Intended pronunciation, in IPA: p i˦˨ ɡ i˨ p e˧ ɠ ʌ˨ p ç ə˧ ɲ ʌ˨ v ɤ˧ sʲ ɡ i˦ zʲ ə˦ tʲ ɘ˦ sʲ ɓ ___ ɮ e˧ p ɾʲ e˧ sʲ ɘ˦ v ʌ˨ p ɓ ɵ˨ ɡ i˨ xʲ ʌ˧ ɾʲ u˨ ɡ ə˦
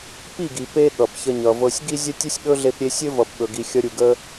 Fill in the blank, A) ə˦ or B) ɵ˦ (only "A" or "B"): B